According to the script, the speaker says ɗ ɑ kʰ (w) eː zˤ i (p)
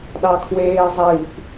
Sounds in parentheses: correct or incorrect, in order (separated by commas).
correct, correct